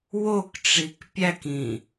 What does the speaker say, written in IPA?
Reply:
w o k ʈ͡ʂ i k pʲ æ k ĩ

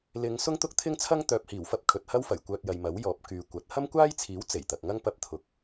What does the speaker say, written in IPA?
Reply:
l ɪ˨˧ ŋ s ʊ˥ ŋ t̪ ʊ˥ k̚ t̪ʰ ɪ˥ ŋ t͡sʰ ɐ˥ ŋ t̪ œː˨ p̚ h iː˨˩ w f ɐ˥ p̚ kʰ ɵ˨ t̚ h ɐ˥ w f ɐ˨˩ j kʷ œː˧ t̚ j ɐ˨ j m ɐ˨˥ w j ɔː˨˥ p̚ k yː˨˧ kʷ ɐ˨˥ t̚ h ɐ˥ m kʷ aː˥ j t͡sʰ iː˨˥ w t͡s e˨˩ j t̪ ɐ˨ k̚ ŋ ɐ˥ ŋ p ɐ˧ p̚ t̪ʰ ʊ˨ k̚

